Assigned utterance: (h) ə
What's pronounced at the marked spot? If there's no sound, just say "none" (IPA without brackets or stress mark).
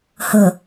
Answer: h